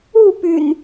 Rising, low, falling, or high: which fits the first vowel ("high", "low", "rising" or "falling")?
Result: falling